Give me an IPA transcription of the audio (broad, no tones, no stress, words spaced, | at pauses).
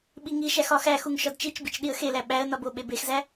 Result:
ɓiŋiʃæx ɒxæxuŋ ʃɒdt͡ʃit͡ʃbit͡ʃ ɗiə̯xelæ ɓæə̯ nɒboɓe bexzæ